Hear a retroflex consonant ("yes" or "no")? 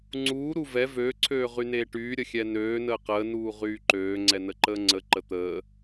yes